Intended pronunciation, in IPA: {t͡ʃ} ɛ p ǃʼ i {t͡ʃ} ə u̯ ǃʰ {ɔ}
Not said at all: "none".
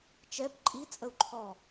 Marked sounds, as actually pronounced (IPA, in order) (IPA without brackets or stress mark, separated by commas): t͡ʃ, t͡sʼ, ɔ